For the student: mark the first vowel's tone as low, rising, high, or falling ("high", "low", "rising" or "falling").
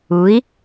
rising